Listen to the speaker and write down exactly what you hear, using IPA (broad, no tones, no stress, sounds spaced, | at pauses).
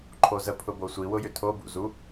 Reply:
ǃʰ o z ə pʰ ʊ b o sʷ i w ʊ j ʏ tʰ o b ṵ z u